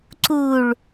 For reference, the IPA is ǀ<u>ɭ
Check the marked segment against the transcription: correct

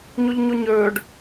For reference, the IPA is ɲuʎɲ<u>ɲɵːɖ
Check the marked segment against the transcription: correct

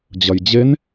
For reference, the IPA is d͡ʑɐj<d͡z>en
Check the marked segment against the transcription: incorrect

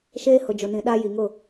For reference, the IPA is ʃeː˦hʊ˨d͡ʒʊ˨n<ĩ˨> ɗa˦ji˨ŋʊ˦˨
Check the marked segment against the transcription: correct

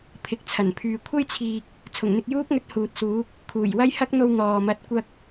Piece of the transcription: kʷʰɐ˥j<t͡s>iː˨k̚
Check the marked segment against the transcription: incorrect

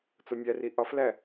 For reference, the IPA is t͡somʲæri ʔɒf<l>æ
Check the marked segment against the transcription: correct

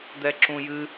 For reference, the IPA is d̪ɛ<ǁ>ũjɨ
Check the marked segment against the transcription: correct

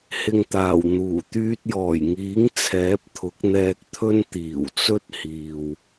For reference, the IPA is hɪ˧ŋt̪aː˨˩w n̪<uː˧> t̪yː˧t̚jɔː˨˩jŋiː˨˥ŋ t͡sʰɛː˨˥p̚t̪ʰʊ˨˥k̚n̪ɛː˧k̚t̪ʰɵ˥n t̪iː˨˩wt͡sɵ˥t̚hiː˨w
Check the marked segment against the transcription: incorrect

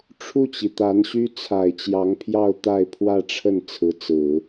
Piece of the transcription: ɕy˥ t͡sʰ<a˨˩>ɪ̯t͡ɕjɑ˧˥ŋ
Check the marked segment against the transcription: correct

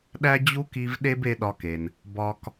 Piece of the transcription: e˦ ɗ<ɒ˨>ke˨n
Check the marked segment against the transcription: incorrect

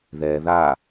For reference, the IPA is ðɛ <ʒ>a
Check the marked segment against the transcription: incorrect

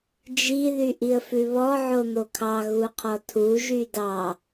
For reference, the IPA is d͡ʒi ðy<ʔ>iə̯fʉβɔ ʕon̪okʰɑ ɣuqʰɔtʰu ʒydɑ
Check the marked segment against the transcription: correct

